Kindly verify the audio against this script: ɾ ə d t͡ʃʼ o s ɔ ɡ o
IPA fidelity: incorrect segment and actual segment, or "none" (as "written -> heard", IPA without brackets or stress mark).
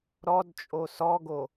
ə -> ɔ